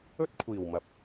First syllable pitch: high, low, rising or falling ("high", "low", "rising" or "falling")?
high